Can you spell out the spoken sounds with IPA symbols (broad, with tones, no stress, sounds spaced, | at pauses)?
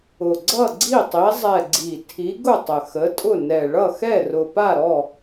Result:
ʊ˨˩ ɡ͡ǀ ʌ˥˨ ɡ͡ǀ i˥˨ tˤ i˨˦ zˤ ɛ˨˩ ɡ͡ǀ i˨˩ tʰ i˨˦ ɡ ʊ˥˨ tˤ ə˨˩ x ə˨˦ tʼ ʊ˥˨ n ɛ˨˩ ɭ ʌ˥˨ x ɛ˥˨ r ʊ˨˩ p a˥˨ ɾ ɔ˥˨